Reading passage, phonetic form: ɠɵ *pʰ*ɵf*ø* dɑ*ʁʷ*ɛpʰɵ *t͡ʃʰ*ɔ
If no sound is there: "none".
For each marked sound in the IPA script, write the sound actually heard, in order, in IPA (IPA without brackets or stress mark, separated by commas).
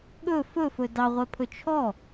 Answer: f, ɵ, ʁʷ, t͡ʃʰ